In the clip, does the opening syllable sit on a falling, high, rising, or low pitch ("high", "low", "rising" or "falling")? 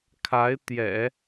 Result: rising